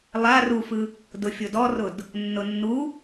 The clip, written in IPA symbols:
lˠ a r u f ɯ | d ʊ fʲ ʊ d ɔ r ʊ d | nː ʊ nː u

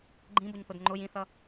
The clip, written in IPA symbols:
ɡ͡ǃ ĩ b ʊ ɲ θ ʊ d ŋ͡ǃ ʊ j ĩ θ ʌ

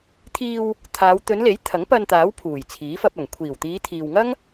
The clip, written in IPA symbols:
t̪ʰ iː˧ w | t̪ʰ aː˨˧ w t̪ ɵ˨˧ n l e˨˥ j t̪ʰ ɐ˨˥ ŋ p ɐ˧ n t̪ aː˨˥ w pʰ uː˨˩ j t͡sʰ iː˨˥ f ɐ˧ p̚ ɐ˨˩ ŋ kʷʰ iː˨˩ w t̪ iː˨˧ t̪ʰ iː˨ w ŋ ɐ˥ ŋ

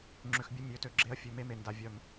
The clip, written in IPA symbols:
ŋ͡ǁ ø˨ x bʲ ə˧˥ mʲ ø˩˥ t ø˨ ɡ͡ǁ e˧˥ ɐ̯ fʲ ø˨ m e˧˥ m e˨ n d a˨ vʲ œ˨ m

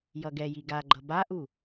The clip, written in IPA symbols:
j ʌ ɡ ɛ j i ɡ a ɡ͡ǃ ʌ b a ʔ u

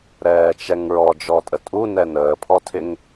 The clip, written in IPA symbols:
ɾ ɛː t͡ʃ ɛ ŋ ɹ ɔ d͡ʒ ɔ tʼ ə tʼ u n ɛ n əː pʰ ɔ tʰ ɪ ŋ

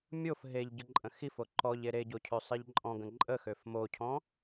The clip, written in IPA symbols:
mʲ o f ɦ e ʎ ɟ ə ǃʼ ə̃ x i f o ǃ ɔ ʎ e ɾ e ɟ o cʰ ø sˤ i ʎ ǃʼ ɔ̃ ɡ ə̃ ǃʼ ə x ø f m o cʰ ɔ̃

